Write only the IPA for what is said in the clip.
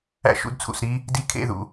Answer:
æ̰˦ ʃ ṵ˧ d t͡sʰ ṵ˨ s ɾ i˦ | d i˧ kʰ ḛ˦˨ ð ṵ˨

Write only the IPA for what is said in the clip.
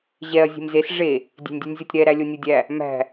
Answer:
ʑ ɛ ɐ̯ zʲ e̤ m z e s ʐ e | dʲ e̤ nʲ dʲ u nʲ zʲ ɔ tʲ ɾ ɛ ɾ æ lʲ o nʲ u dʲ æ | m æ̤

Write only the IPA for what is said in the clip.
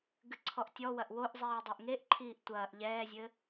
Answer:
ɡ ɨ ǀʰ ɔ ʔ tʲ ɔ w ɐ ʔ w o ʔ zˤ iː dˤ e ʔ ŋ e ʔ ǃʰ iː ʔ tʷ ɐː ʔ ʎ ɛː zʲ ɘ

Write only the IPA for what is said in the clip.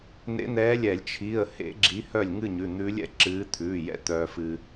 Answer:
n̪ ḛ˧˥ n̪ ɛː˧˥ lʲ ɛ˧˩˧ lʲ t͡ʃʰ i˩˧˩ ə̯ h ḛ˧˥ ɡ͡ǁ i˧˥ h œ˥˨ lʲ ŋ ɨ˥˨ ɲ ʉ˩˧˩ n̪ ʉː˧˥ lʲ ɛ̰˧˥ ǁ ɨː˧˥ t̪ʰ ʉː˩˧˩ j ɛ̰˧ t̪ œː˧ f ɨ˧

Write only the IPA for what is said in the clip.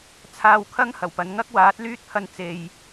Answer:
t͡sʰ aː˨ w kʰ ɐ˧ ŋ h ɐ˨˩ w p ɐ˨˧ n ŋ ɐ˥ k̚ w aː˨˥ t̚ l yː˥ t̚ pʰ ɐ˧ n t͡s e˨ j

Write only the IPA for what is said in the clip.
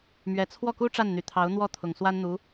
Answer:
m ɥ ɛ˨˩ t͡sʰ w ɔ˥˩ k u˥ ʈ͡ʂ a˥˩ n n̪ y˨˩ t̪ʰ ɑ˧˥ ʊ̯ n̪ w ɔ˥˩ t̪ʰ ʊ˨˩ ŋ s w a˥ n n̪ u˧˥

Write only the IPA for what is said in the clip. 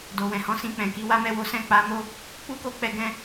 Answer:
d o˨ w ɛ̃˨ h ɔ̃˨˦ s ĩ˧ k͡p ɛ̃˨ k i˨˦ w a˦ m ɛ˦˨ w o˨˦ s ɛ̃˦˨ k͡p a˨˦ m o˦ | k͡p u˦ k o˦˨ k͡p ɛ˧ ɡ ɛ̃˦

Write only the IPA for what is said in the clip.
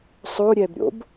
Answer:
sˤ o ɾʲ ɛ b ɾʲ o̰ b

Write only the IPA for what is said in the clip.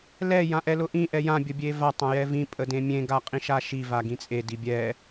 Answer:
l ɛ j ã ʔ ɛ l ʊ ʔ ĩ ʔ ɛ j ã bʲ ə bʲ e v a tˤ ã j ɛ v ĩ pʼ ə d ẽ mʲ ẽ ɡ a qʼ ĩ ʃ a ʃ i v a ɡ ĩ t͡sʼ e d i bʲ ɛ

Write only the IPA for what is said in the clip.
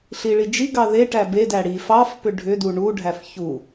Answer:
ɬ i ɭ i d͡ʒ i ɡ ɑ ð e ʈ æ b e d æ ɽ i f ɑ f p ʏ ɖʱ ʏ d u ɳ u ɖʱ æ f ç u

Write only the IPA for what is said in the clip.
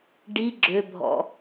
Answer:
ɖ i ɡ͡ǁ ø bʱ ɔ̰

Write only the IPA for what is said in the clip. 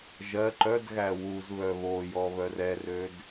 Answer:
ʒ ɜ ǃ œ d ɣ æ w u z β œ β o j ɔ β œ r ɛ r ø d

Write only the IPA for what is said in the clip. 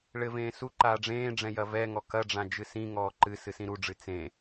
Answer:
ɭ ɘ v ẽː s u ǃ aː ɖ͡ʐ ẽː ɖ͡ʐ ɛ̃ j ɐ v ɛ ŋ ɔ k ɐ ɖ͡ʐ ã d͡ʒ ɨ s ĩ ŋ ɔː ǃ ɨ s ɨ s ĩ ɾ u ɖ͡ʐ ɨ t͡s ẽ

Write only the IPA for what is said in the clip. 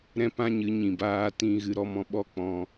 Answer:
ɾ ɛ̃˦ p ã˦ ɲ ɨ˨˦ ɲ ĩ˨ b aː˧ t ĩ˧ ɣ ɨ˧ ɾ ɔ˧ m ɔ̃˧ ɓ ɔ˦ k͡p ɔ̃˧

